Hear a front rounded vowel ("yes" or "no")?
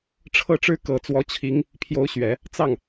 no